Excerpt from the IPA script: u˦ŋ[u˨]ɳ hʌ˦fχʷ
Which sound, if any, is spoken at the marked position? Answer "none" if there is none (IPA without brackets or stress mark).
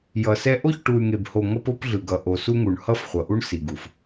u˨